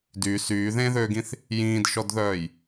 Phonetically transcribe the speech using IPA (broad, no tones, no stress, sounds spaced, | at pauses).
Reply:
d y s yː ð ẽː ð øː ɡ ĩ θ | j ĩː d ʃ ɔ d ð œː j